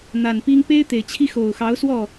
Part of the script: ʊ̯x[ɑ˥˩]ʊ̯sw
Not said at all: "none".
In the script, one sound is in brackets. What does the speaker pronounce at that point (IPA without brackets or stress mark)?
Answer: ɑ˧˥